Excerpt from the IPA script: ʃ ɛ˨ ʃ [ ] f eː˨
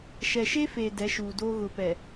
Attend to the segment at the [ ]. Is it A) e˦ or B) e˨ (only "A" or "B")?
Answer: A